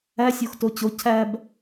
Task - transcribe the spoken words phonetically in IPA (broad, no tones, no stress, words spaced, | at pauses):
æsʲox tot͡ɕo cʰæb